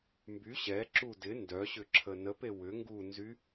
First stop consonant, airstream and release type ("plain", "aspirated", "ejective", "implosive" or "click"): plain